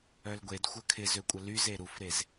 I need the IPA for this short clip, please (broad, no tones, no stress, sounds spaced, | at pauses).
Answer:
œ l ɡʷ e d xʷ œ kʰ ɪ z ø kʷʼ ə l y z e ɾ u f ɾ e z